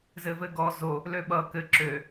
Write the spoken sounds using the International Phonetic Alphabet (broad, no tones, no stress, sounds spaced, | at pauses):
z ɘ v ɘ ɡ ɔ z o | l ø ɓ ʌ k ɘ ǁ ø